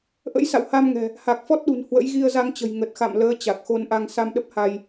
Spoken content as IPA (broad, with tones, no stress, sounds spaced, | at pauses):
ʔ ə̰˧˥ j s a̰˧˨ w h a˧ m ŋ ɛ̤˨˩ | h a˨˩ k̚ f ɔ˦˥ t̚ ɗ ṳ˨˩ n h w ə̰˧˥ j ɣ i˧ ə̯ z a˧ ŋ t͡ɕ ə̤˨˩ j ŋ ə˨˩ t̚ x a̰˧˨ m l əː˨˦ t͡ɕ a˨˩ k̚ x o˧ n ʔ a˧ ŋ s a˧ m ɗ ə˦˥ p̚ h a˧ j